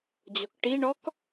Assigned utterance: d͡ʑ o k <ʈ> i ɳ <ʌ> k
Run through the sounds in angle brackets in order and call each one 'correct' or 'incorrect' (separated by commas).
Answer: correct, incorrect